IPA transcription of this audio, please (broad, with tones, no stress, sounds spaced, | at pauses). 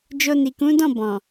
d͡ʒ o˧ n i˨ k ũ˨˦ d ɔ̃˦˨ b ɔ̃˨